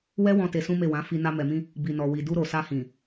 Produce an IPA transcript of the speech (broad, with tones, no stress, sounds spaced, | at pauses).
w ɛ˦ w ɔ̃˧ t e˧ s ũ˦ m e˦˨ w ã˨˦ f i˧ n a˧ m ɛ˨ m ĩ˧ | b i˨ n ɔ˨ w i˨ d u˧ ɾ o˨ s a˧ h ĩ˨